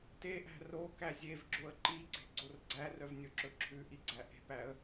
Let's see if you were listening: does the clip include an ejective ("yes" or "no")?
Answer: no